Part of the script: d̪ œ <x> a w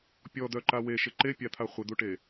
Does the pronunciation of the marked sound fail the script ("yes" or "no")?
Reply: yes